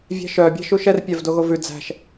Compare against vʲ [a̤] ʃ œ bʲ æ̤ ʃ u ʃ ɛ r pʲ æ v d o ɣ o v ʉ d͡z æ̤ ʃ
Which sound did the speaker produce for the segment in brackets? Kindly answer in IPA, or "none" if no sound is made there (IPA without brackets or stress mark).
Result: æ̤